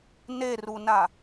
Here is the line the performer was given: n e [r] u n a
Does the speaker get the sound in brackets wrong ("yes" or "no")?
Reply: no